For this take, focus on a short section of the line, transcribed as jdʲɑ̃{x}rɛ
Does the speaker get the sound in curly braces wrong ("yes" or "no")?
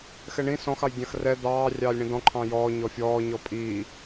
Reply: no